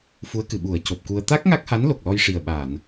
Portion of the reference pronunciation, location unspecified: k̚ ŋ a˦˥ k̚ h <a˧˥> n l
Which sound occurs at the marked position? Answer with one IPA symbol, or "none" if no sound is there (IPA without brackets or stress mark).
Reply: a˧˥